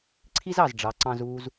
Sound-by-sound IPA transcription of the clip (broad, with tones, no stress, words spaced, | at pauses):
ǀʰi˥z ɑ˩zɖ͡ʐɑ˩˧ǀɑ̃˧z uː˧z